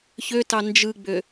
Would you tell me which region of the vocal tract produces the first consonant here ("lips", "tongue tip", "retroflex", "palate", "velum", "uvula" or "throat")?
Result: palate